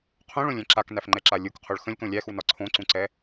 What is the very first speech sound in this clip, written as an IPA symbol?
qʰ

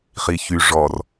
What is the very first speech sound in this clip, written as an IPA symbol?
χ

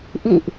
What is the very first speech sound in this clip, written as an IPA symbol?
ʔ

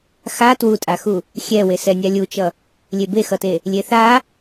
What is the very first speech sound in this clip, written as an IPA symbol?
x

